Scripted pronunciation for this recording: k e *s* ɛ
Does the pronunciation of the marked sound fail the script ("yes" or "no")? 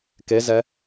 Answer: yes